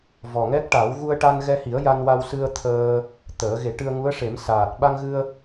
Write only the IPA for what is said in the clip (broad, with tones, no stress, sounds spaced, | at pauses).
v ɔ˨˩ ŋ ɛ˦˥ k̚ ʈ a˨˩˦ w ɣ u˧ ə̯ ʈ a˧ n ɣ ɛ˧ h i˨˩˦ ə̯ j a˧ n w a˧ w s ɨ˧ ə̯ t̪ʰ əː˧ | t̪ əː˨˩˦ ɣ e˨˩˦ ʈ ɨ˧ ə̯ ŋ u˧˥ ə̯ ʂ e˨˩˦ m s aː˨˩ t̚ ɓ a˧ ŋ ɣ ɨ˧ ə̯